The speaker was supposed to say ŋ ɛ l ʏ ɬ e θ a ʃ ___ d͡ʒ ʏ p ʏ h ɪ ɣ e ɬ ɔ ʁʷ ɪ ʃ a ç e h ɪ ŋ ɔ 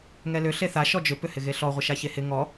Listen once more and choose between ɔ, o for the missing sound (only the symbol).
ɔ